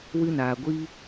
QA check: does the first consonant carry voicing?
yes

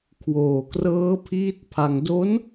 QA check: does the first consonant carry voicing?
no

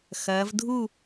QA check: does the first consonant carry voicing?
no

